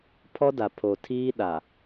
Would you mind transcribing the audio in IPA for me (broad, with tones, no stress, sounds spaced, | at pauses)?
pʰ ɔ˦ d a˨ pʰ o˨ tʰ iː˦ ɗ a˨